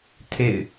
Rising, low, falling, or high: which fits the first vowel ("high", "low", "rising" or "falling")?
falling